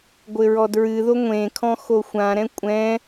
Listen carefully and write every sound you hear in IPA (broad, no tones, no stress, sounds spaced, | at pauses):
ɡʷ ɘ ɹ ɔ d ɹ ɨ ð o ŋʷ ẽ kʰ ɔ̃ x o xʷ ã ɾ ɛ̃ kʷʼ ɛ̃